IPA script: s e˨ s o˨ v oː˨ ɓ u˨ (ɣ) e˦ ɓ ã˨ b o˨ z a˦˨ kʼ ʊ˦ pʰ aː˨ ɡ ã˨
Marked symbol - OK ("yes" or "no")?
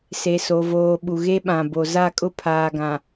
yes